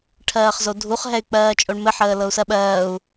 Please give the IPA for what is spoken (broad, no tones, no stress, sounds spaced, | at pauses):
ʈʰ ɜː χ z o dʱ u χ ɦ ɛ y̯ k͡p ɜː t͡ʃʼ o ɳ m ɘ ħ əː l ɤ u̯ s ɜ ɓ ɜː u̯